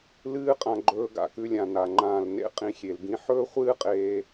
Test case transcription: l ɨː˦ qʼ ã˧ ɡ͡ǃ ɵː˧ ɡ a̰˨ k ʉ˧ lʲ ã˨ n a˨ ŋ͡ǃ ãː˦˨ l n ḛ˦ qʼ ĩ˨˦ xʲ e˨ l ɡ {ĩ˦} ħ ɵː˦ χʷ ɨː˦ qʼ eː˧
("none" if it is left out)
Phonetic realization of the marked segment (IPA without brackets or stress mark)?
ĩ˦